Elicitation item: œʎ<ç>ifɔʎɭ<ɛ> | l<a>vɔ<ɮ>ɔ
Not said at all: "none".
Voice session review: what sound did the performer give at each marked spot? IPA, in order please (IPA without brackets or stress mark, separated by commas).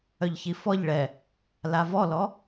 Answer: ç, ɛ, a, l